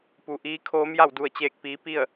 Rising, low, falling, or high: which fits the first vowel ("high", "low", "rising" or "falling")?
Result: low